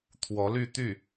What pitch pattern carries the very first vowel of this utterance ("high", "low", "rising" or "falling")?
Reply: rising